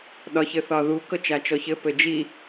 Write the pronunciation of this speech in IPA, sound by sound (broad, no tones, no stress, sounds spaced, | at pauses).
ɗ ɒ ç ɘ θ ɒ ð u k ɤ t͡ʃ a t͡ʃ ɔ ç ɘ p ɘ d͡ʒ i